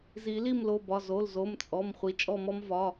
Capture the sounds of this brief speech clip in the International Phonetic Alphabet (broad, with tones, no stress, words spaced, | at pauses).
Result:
zi˨˩˦li˥˨mlo˩˧˩bɒ˩˧˩ zo˩˧˩lzo˩˧˩m t͡sʼɔ˩˧˩m χʷi˩˧˩t͡ʃʼɔ˥˨mɔ˥m vɒ˩˧˩